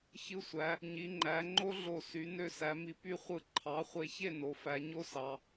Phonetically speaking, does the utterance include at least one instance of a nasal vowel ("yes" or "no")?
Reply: no